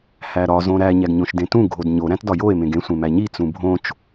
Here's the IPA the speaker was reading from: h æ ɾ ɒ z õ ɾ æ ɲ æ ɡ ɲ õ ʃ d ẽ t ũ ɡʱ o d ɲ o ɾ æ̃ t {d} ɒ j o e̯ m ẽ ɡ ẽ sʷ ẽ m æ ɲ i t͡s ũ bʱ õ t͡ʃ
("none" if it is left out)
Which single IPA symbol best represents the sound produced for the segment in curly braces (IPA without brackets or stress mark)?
d